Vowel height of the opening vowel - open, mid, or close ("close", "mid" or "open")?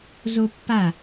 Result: mid